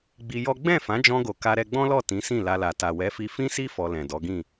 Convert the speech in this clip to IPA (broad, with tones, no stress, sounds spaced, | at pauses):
ɡ͡b i˧ j ɔ˦ ɡ͡b ɛ̃˦˨ f ã˨˦ d͡ʒ ɔ̃˧ ɡ o˨ k a˧ ɾ ɛ˧ ɡ͡b ɔ̃˦ l ɔ˦˨ t ĩ˨˦ s ĩ˦˨ l a˧ l a˨ t a˨ w ɛ˨˦ f i˧ f ĩ˦ s i˦ f ɔ˧ l ɛ̃˨ d ɔ˨˦ ɡ ĩ˦˨